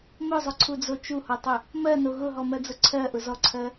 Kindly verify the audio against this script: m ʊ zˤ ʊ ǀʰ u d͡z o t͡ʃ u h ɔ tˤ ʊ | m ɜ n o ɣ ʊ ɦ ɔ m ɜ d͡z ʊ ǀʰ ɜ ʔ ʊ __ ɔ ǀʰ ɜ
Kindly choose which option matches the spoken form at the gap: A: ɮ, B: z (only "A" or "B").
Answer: B